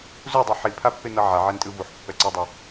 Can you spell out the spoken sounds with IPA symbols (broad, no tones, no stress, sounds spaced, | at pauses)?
z u dˤ ɯ ħ i pʰ a pː e n ʌ ʕ a ʕ ɛ n tʼ ɯ v u ħ pː ɛ ǀ e dˤ ʌ